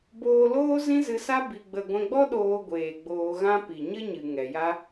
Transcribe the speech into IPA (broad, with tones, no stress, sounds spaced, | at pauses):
b oː˧ l oː˦ z ĩ˦ z ɨ˧ s a˦ b i˧ ɡ͡b ə˧ ɡʷ ɛ̃˧ ɡ͡b ɔ˦ ɗ oː˧ ɡʷ eː˨ ɡ͡b oː˧ ɣ ã˦ p i˨ ɲ ə˦ ɲ ɨ˨ ŋ ɛ˨ j a˦